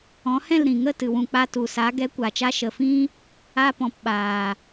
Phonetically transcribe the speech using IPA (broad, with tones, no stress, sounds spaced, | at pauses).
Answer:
ɔ̃˨˦ h ɛ̃˦˨ l ɾ ĩ˨ ŋ ə˦˨ t ɨ˨ w ũ˨ k͡p a˧ t u˨ s a˨˦ ɡ ɛ˨˦ kʷ a˨ t͡ʃ a˧ ʃ ə˨ f ĩ˦ | a˧ p ɔ̃˨ p ɓ aː˨